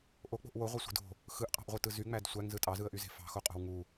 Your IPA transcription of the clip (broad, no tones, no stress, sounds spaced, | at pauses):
ʔ o k͡p o̤ ʔ w o ʁʷ e sʷ i̤ d o̤ | x ɯ ʔ qʼ ɑ̤ ʔ ʁʷ ɯ t ɯ z y ŋ͡m æ d sʷ æ ŋ z ɯ tʼ ɑ z ɯ ə̯ ʔ y z e̤ f ɑ̤ x o qʼ o̤ w ŋ u